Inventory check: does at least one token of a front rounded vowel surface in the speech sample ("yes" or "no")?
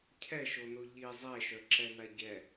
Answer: yes